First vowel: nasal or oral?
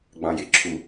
nasal